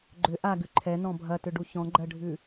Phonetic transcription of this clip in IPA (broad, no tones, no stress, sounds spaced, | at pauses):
ɡ͡ǃ ʏ ʔ a ɡ ʉ ǃʰ ɛ n ɔ̃ bʱ ɐ t ʏ ɖ u ç ɔ̃ ɡ͡ǃ ɜ ɖʱ ʉ